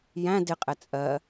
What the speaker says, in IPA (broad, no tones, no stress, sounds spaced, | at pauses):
j æ̃ d ɪ qʼ ɛ t͡sʼ ɜ